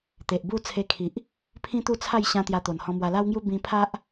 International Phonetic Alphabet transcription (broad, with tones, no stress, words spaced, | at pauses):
t̪e˨ʔbu˥˧ t͡sʰe˧kʰi˨ʔ | pʰĩ˦t̪u˥˧t͡sʰa˥˧j ɕã˧ t̪ja˧t̪o˨˩nhɔ̃˧mwa˧ la˦wŋju˦ bĩ˧pʰa˦ʔ